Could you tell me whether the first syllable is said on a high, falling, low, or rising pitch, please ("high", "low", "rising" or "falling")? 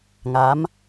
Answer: rising